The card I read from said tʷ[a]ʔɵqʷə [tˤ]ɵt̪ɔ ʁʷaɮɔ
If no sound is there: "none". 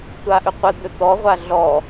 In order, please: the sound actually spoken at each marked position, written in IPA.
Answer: a, d̪

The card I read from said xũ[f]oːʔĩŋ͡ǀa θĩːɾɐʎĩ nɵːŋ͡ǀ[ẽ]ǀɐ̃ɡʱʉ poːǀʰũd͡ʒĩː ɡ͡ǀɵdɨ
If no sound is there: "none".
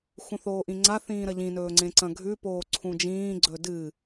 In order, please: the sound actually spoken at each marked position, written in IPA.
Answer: θ, ẽ

